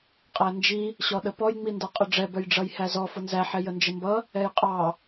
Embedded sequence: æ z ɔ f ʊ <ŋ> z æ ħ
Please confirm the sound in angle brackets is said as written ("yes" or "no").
no